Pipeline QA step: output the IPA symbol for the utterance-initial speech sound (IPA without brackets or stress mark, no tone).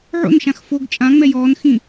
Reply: ʕ